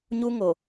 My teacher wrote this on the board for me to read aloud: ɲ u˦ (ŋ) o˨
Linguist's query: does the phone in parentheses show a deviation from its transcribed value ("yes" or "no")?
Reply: no